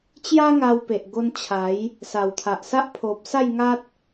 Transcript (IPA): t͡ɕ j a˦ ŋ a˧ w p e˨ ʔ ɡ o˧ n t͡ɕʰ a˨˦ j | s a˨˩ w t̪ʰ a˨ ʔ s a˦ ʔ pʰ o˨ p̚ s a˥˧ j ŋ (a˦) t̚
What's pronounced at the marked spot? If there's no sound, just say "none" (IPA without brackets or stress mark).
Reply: a˦